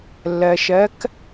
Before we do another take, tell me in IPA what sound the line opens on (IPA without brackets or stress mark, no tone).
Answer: lː